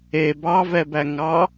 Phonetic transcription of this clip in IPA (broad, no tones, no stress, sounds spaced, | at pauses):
e b ɑ v ɛ b æ ŋ ɑ